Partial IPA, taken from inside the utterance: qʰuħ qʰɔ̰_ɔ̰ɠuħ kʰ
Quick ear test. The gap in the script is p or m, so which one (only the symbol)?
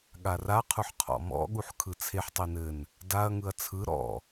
m